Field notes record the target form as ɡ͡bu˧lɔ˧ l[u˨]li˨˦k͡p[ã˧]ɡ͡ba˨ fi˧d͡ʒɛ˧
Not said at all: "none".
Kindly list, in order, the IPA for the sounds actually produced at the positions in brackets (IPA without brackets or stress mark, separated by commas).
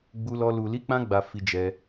u˨, ã˧